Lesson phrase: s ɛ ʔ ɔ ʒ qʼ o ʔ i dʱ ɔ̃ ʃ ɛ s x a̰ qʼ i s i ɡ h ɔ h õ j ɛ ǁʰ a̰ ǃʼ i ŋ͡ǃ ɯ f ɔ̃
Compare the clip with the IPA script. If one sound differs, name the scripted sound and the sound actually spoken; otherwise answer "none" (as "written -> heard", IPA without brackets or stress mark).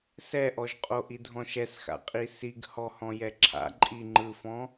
õ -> ɔ̃